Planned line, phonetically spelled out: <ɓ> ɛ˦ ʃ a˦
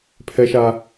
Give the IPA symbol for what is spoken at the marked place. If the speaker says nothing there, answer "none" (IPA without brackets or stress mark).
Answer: pʰ